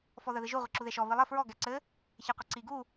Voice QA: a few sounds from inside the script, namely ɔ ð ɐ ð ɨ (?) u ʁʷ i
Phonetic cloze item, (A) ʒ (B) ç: A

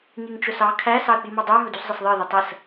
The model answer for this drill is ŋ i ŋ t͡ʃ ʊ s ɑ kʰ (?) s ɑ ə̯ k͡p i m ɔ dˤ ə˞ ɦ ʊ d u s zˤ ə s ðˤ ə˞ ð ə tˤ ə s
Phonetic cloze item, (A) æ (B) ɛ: A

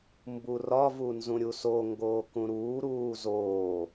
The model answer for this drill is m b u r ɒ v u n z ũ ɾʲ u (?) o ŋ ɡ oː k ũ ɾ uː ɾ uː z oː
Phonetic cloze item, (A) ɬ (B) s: B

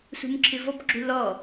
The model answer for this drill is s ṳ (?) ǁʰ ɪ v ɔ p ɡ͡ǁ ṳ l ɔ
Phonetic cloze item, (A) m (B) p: A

